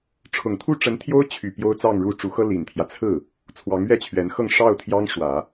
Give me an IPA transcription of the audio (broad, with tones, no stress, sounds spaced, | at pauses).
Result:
ʈ͡ʂʰ ʊ˨˩ ŋ t̪ʰ u˥˩ ʈ͡ʂ ə˧˥ n t̪ʰ j o˥ ʊ̯ t͡ɕʰ y˨˩ p j o˥ ʊ̯ t͡s ɑ˥˧ ŋ ɻ u˥˩ ʈ͡ʂ u˧˥ x ɤ˥ l i˨˩ n t̪ʰ j ä˦ t͡sʰ ɹ̩˥˩ | t͡sʰ w ɑ˧˥ ŋ ɥ ɛ˥˩ t͡ɕʰ ɥ ɛ˧˥ n x ɤ˥˧ ŋ ʂ ɑ˥˩ ʊ̯ t̪ʰ j ɑ˥ ŋ ʂ w ä˨˩˦